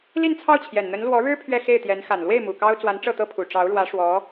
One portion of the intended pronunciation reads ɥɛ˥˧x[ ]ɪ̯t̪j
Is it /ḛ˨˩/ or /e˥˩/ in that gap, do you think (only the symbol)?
e˥˩